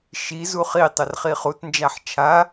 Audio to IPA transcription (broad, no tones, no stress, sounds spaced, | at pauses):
ʃ i z u χ i tˤ ə r χ i χ u t n d͡ʒ a ħ t͡ʃʰ a